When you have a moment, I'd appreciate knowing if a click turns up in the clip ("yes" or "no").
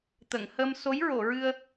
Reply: no